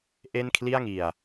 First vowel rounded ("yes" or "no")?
no